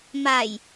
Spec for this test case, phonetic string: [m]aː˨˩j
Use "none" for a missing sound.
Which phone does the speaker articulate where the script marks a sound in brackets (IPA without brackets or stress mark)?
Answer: m